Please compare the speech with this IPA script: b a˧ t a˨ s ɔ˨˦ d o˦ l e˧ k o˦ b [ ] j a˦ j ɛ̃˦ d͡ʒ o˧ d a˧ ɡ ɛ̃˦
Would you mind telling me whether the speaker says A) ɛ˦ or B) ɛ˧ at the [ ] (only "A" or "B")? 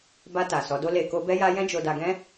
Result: A